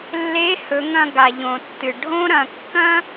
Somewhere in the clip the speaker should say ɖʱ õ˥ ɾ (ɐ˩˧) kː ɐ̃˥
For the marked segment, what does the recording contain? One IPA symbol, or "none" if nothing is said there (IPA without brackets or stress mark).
ɐ̃˩˧